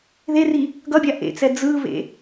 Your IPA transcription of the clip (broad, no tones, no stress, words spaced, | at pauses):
ðeri | ɡʌbʲa ʔḛt͡sɛ d͡zɯβḛ